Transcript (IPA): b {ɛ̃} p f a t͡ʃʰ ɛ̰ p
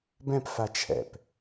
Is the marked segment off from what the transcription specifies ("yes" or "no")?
no